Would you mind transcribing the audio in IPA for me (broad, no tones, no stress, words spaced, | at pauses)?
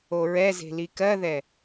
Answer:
oɹɛze̤ likɜðɛ